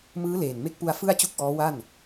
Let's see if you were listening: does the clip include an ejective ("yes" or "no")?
no